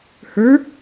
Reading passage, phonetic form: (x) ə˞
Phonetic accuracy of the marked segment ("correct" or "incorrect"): incorrect